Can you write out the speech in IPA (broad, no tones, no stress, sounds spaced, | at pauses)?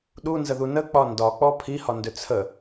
ɗ u n z ə ð u n ə k͡p ɒ n d ɒ k͡p ɔ pʰ i h ɒ n d ʏ t͡sʰ ə